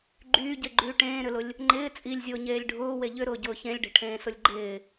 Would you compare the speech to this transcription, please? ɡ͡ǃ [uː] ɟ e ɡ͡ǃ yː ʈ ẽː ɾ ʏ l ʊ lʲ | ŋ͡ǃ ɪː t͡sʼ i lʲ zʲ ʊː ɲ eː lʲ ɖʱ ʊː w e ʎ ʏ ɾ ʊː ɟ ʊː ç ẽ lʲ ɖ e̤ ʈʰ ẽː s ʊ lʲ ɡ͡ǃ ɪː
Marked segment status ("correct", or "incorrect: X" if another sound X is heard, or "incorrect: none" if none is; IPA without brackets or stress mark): incorrect: yː